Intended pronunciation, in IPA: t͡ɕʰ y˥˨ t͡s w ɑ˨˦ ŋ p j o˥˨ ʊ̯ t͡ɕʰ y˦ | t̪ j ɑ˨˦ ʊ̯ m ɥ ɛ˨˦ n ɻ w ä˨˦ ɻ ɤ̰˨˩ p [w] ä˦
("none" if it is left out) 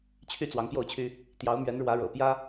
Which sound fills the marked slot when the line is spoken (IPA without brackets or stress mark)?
j